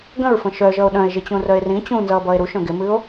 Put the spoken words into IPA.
ɡ ə̃ ɹ f ə̃ ʃ œ ʒ ʌ o̯ ɗ œ̃ e̯ ʒ ɪ t͡ɕ ũ r œ e̯ r ĩ t͡ɕ ũ n z ʌː b ʌː e̯ ɾ u ʃ œ̃ ɡ ɪ m ɨ o̯

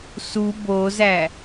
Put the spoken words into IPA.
s u b o z æ

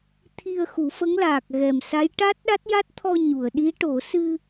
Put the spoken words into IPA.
t̪ʰ i˧ ə̯ x u˨˩˦ f ə˧˥ ŋ l aː˨˩ k̚ ɣ ɛ˨˩ m s a˧˥ j ʈ a˦˥ t̚ ɗ a˦˥ t̚ j a˦˥ t̚ t̪ʰ ɔ˧ ɲ u˨˩˨ ə̯ ɗ i˧˥ ʈ o˨˩˦ s ɨ˧

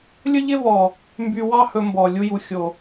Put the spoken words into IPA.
lʲ ɵ˦ ʎ ɪ˦ v ɔ˨ | m b y˧ w ɑ˦ h ɵ˧ m b ɔ˨ lʲ u˧ j u˨ xʲ o˨

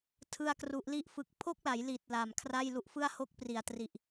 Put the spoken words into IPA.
tʰ ɯ˥˩ a̯ k r u˦˥ ʔ l i˥˩ ʔ f ɯ˦˥ k̚ pʰ o˥˩ k̚ l a˩˦ j l i˨˩ t̚ l a˨˩ m kʰ r a˥˩ j l u˦˥ ʔ f ɯ˥˩ a̯ h o˥˩ k̚ p r i˩˦ a̯ t r i˨˩ ʔ

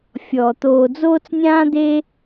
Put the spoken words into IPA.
fʲ ɔː˩ t̪ oː˨ d͡z oː˥ t͡s nʲ ãː˥ d̪ eː˥

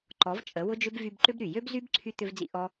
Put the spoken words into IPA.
ǃ ɔ˨˦ v t͡ʃʼ ə˨˦ w ʊ˦ d͡ʒ ʏ˦ b v y˧ b ǃ ʏ˦ b ɾ y˨ j ø˦ b z y˦ b ǀʰ y˧ t̪ ʏ˧ v d͡z ḭ˧ ʔ ɔ˦

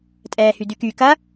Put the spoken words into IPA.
tʼ ɛː h y d y k y k ɐ

